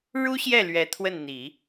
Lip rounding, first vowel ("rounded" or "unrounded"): rounded